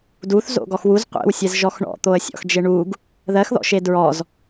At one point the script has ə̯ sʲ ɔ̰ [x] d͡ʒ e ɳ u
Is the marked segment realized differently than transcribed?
no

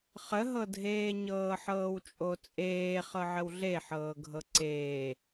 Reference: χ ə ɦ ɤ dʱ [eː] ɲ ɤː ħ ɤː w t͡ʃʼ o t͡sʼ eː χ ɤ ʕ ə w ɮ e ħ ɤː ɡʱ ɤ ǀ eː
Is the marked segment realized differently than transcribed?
no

